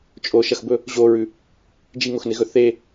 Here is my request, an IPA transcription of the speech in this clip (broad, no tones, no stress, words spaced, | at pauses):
t͡ʃʼoʃɐxbɵ | ʑoɹʉ | d͡ʒiŋoxneɣɵ θe